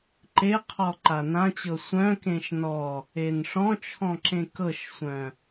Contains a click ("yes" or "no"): yes